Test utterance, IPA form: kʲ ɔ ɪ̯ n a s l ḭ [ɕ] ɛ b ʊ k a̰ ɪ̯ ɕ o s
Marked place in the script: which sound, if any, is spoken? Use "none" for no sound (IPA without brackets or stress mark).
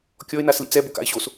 t͡s